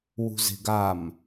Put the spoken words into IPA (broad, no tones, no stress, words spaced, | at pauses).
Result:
wṳze̤ɡam